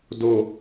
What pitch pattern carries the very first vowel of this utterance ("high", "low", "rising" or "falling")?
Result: low